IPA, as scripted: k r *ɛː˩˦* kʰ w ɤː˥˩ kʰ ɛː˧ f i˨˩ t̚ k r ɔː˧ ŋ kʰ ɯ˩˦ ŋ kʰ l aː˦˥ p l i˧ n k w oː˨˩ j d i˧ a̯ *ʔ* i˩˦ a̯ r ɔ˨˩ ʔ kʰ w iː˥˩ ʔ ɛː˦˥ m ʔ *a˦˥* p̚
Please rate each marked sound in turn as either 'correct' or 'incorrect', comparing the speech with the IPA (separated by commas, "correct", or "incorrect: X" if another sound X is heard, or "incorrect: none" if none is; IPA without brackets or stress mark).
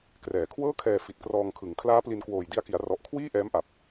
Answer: incorrect: ɛː˨˩, incorrect: k, incorrect: a˨˩